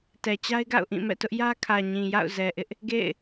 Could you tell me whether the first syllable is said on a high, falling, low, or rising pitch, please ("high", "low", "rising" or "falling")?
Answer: low